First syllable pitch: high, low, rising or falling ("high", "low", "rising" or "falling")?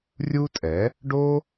high